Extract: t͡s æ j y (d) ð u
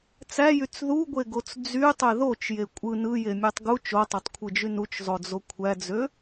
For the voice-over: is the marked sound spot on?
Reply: no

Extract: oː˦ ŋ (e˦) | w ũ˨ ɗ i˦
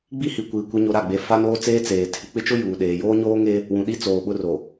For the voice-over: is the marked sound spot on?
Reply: yes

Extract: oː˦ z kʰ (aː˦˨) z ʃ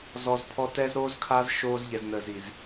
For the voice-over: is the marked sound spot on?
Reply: no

